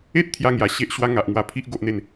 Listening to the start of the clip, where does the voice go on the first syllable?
high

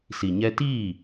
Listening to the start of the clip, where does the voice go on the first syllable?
low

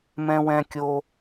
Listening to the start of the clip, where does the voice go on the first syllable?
high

